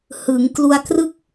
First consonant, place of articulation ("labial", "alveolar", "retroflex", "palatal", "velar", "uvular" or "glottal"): glottal